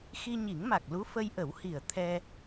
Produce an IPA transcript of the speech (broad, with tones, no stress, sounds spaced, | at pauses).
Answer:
x i˧ ɲ i˨˩˦ ŋ m a˨˩ k̚ l u˧˥ f ə˧ j ʔ ə˨˩˦ w h i˨˩ ə̯ t̪ʰ ɛ˧